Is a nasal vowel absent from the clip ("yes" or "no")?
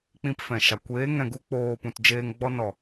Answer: no